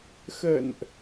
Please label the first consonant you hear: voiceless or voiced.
voiceless